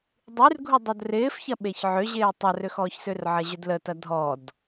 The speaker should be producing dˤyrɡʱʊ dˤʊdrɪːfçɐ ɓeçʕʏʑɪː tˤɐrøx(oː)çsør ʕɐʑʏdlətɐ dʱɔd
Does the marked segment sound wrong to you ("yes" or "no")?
yes